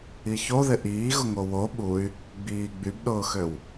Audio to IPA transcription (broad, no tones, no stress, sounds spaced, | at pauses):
i ç o ð ɪ ʔ iː ɣ ʊ ŋ o w o ɓ u y̯ | ɡ͡b iː ɡ͡b y b ɗ ʊː x ø w